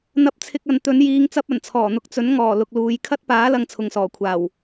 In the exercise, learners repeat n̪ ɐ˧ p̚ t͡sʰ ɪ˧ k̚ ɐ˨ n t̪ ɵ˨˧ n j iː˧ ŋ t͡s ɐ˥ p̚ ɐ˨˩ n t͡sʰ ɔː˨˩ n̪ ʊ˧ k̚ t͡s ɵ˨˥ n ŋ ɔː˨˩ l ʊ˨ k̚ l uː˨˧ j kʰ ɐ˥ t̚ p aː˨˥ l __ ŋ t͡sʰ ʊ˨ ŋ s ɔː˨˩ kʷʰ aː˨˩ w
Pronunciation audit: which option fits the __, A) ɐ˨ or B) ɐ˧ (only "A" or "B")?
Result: B